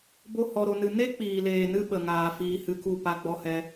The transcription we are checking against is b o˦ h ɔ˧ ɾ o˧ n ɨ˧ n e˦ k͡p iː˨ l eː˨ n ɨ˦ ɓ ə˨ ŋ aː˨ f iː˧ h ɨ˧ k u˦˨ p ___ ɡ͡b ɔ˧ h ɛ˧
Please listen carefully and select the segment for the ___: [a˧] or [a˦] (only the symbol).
a˧